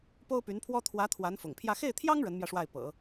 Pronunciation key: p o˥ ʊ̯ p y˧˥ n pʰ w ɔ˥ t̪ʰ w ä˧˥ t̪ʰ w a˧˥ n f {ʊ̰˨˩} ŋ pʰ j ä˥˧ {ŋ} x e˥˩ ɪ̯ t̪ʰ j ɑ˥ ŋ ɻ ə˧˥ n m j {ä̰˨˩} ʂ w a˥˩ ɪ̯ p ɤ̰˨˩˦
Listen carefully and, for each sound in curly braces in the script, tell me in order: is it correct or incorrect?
correct, incorrect: none, incorrect: ä˧

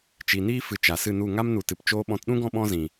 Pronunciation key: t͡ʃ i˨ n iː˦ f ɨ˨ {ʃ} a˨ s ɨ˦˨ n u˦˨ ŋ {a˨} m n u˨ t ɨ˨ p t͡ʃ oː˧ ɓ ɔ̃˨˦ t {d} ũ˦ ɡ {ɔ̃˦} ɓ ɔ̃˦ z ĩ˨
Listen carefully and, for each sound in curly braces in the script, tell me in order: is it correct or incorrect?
incorrect: t͡ʃ, incorrect: a˦, incorrect: ɗ, correct

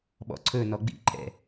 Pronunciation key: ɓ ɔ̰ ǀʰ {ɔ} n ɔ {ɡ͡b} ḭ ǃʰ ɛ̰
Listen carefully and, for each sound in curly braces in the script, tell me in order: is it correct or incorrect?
incorrect: ɵ, correct

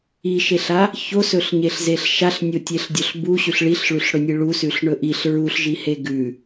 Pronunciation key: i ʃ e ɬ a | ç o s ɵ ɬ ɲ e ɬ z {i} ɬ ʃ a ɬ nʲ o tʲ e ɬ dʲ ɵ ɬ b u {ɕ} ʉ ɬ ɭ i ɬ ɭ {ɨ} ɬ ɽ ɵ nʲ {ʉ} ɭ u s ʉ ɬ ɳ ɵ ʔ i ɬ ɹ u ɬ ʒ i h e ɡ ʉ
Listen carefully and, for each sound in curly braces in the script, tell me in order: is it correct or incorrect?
incorrect: e, correct, incorrect: ʉ, incorrect: ɨ

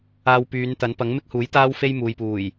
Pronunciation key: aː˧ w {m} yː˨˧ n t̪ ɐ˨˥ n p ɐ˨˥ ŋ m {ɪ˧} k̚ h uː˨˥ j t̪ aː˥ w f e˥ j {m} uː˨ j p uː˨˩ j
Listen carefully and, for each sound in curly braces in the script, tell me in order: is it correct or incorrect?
incorrect: p, incorrect: ɪ˥, correct

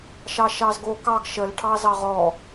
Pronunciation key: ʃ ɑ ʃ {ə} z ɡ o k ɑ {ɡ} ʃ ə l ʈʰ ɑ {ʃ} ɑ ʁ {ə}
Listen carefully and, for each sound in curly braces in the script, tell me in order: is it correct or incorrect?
incorrect: ɑ, correct, incorrect: z, incorrect: ɔ

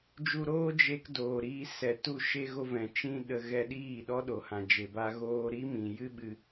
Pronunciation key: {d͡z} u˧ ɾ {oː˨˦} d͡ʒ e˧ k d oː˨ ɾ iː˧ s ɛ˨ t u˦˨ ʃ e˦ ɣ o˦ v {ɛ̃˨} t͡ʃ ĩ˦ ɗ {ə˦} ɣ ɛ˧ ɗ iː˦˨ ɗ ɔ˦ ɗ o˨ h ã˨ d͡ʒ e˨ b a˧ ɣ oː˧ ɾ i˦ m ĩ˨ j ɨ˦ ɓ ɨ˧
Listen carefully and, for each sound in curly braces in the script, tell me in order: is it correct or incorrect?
incorrect: d͡ʒ, incorrect: oː˦, correct, incorrect: ə˧

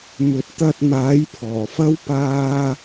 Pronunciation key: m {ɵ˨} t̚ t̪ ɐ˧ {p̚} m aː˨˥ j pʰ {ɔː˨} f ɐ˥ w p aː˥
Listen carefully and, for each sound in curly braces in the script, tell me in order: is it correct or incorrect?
correct, incorrect: t̚, incorrect: ɔː˨˩

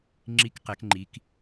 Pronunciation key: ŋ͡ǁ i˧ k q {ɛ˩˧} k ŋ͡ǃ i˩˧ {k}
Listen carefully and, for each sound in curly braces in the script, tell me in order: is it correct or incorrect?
correct, correct

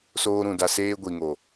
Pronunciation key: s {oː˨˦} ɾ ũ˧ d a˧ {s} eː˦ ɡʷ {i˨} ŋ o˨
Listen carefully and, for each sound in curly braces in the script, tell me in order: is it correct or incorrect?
incorrect: oː˦, correct, correct

